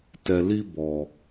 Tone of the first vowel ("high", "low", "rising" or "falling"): low